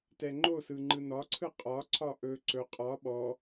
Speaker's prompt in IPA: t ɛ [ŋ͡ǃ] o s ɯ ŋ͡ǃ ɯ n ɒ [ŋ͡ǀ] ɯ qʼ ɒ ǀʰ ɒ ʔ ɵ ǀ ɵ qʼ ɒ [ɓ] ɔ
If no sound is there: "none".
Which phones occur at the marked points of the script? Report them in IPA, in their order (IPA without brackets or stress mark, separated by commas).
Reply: ŋ͡ǃ, ǀʰ, ɓ